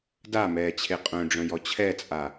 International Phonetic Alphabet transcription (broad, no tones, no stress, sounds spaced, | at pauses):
d a m ɛː t͡ɕʰ e qʼ œ̃ ɖ͡ʐ œ̃ j ɔ t͡ɕʰ ɛ t͡sʼ a